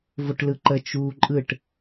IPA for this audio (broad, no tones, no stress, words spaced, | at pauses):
voʈlɯǃə t͡ʃuːǃʼɯʈ